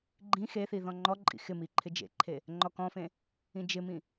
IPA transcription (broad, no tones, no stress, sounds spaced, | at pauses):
ɡ͡ǃ ĩ x e θ i ð ɔ̃ ŋ͡ǃ ɔ ǃʼ ḭ x ɪ m i ǃʰ ɪ d͡ʒ ḛ ǃʰ e | ŋ͡ǃ ɔ k ɔ̃ f ẽ | ĩ d͡ʒ ɪ m ĩ